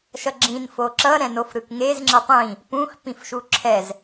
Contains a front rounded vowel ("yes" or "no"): no